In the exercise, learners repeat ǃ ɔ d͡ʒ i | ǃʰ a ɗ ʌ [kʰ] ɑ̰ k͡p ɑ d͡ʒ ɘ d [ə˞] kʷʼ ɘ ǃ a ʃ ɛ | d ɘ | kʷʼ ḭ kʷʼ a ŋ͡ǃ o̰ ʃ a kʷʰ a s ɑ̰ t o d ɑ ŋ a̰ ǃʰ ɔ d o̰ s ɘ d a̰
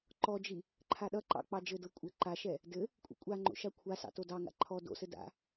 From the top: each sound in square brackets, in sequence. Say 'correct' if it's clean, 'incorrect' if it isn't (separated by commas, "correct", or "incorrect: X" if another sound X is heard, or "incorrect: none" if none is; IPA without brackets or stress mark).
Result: incorrect: ǃ, incorrect: ɤ